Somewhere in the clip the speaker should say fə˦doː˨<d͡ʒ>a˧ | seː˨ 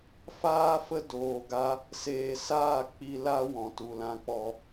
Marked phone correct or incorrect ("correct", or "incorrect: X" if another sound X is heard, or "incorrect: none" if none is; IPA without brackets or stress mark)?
incorrect: ɡ